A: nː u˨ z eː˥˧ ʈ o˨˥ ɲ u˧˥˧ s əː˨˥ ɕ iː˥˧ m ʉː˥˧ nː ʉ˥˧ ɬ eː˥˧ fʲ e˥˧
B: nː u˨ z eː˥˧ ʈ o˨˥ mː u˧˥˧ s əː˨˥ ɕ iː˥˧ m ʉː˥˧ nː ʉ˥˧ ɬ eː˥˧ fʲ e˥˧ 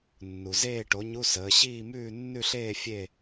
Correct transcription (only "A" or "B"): A